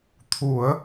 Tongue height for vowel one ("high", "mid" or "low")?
high